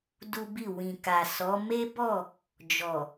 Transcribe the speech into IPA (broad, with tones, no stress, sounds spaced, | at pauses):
d u˦ b i˦˨ w ĩ˨ k a˨ s ɔ˨˦ m e˦ b ɔ˦˨ | d͡ʒ ɔ˨